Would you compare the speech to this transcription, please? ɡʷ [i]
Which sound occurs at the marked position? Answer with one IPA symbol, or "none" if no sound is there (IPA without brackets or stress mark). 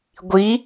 i